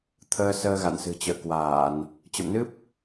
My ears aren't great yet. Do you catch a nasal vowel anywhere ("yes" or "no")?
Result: no